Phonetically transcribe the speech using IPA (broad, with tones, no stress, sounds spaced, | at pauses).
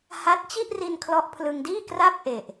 h a˦˥ t̚ t͡ɕ i˥˩ ʔ r i˧ n kʰ l ɔ˦˥ ʔ pʰ l ɯ˧ ŋ d iː˥˩ k r a˥˩ p̚ ʔ e˨˩ ʔ